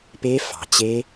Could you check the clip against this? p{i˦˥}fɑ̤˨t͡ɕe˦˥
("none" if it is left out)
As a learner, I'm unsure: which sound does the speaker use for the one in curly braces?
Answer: e˦˥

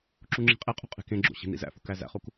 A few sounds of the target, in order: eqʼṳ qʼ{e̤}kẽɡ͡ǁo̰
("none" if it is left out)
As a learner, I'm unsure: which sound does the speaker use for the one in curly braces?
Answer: e̤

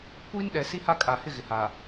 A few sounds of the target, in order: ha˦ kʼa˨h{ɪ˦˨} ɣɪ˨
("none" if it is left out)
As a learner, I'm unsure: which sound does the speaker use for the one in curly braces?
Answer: ɪ˦˨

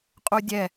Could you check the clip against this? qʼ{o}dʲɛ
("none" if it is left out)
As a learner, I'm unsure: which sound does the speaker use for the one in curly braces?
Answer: u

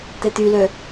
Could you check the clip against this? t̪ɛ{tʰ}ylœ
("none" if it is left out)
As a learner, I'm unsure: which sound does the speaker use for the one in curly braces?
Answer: t̪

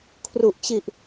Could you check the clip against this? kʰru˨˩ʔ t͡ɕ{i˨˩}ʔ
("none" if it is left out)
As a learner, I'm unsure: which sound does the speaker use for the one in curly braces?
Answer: i˨˩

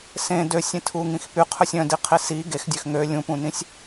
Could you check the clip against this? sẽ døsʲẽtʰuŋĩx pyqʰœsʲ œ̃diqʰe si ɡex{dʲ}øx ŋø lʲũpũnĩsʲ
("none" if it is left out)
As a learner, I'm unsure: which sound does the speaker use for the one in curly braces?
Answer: dʲ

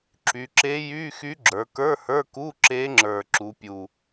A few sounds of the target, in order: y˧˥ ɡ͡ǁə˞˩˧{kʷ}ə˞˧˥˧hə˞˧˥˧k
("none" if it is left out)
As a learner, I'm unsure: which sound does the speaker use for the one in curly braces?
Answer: k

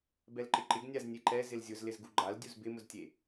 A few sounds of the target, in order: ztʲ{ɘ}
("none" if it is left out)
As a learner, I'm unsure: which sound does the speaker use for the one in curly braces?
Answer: e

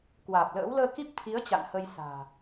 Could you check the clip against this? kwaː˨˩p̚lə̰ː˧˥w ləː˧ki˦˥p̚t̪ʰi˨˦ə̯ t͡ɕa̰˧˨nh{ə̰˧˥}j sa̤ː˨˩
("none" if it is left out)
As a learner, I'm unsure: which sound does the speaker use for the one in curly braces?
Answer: ə˧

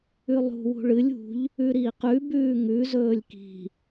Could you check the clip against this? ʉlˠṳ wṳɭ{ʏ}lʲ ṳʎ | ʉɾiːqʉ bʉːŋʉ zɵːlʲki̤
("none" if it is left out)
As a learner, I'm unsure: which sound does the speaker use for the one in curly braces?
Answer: ɨ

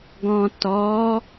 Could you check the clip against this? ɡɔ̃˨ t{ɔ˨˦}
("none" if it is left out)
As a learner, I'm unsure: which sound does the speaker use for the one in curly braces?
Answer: ɔ˨˦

